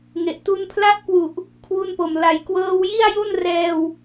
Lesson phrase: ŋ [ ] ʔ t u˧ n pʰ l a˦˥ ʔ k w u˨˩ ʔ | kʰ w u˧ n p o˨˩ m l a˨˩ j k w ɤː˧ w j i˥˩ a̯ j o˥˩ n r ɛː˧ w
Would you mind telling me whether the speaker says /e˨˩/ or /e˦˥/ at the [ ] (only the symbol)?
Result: e˨˩